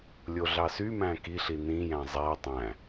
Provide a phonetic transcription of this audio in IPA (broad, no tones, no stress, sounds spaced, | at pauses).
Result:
lʲ o ɮ ɑ s y m æ̃ k i ɬ i n ĩ j æ̃ zˤ æ tˤ æ̃